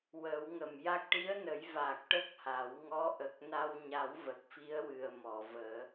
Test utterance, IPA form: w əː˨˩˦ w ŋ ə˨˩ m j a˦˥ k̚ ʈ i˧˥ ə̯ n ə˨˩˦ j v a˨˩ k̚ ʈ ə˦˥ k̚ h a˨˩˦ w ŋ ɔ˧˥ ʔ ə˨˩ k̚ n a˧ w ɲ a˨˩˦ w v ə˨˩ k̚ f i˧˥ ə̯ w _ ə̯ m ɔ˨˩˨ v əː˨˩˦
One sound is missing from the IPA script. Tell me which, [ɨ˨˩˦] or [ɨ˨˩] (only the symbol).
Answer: ɨ˨˩